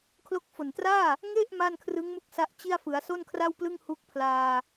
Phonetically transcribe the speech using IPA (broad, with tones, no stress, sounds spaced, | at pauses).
kʰ l o˦˥ k̚ f o˨˩ n t r aː˥˩ | ŋ e˥˩ ʔ m a˥˩ n kʰ r ɯ˦˥ ŋ m u˦˥ k̚ s a˦˥ ʔ t͡ɕ i˥˩ a̯ f ɯ˩˦ a̯ s o˥˩ n kʰ r a˥˩ w p l ɯ˥˩ ŋ h u˦˥ k̚ pʰ l aː˧